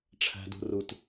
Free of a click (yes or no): yes